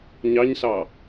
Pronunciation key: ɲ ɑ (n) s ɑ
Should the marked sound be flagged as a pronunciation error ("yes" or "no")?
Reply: yes